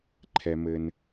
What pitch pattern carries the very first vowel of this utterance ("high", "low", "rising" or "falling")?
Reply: high